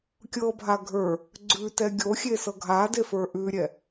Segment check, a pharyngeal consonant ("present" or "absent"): absent